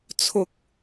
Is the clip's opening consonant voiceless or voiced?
voiceless